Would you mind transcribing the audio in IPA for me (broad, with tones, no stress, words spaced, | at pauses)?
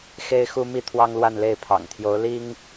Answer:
xe˥ɪ̯xu˥ mi˥˩t̪ʰwɑ˥ŋlwa˥˧nle˥˩ɪ̯ pʰɑ̰˨˩ŋt̪ʰjo˧˥ʊ̯ li˥ŋ